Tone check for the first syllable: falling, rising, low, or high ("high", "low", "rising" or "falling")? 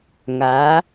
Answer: rising